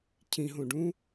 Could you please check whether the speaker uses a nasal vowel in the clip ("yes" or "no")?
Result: yes